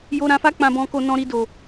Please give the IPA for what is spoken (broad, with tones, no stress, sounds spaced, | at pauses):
j o˧ ɾ ã˧ f a˦ k͡p ã˧ b ɔ̃˧ k o˧ n ɔ̃˧ ɾ i˧ d o˨